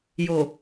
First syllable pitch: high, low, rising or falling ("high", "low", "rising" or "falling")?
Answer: low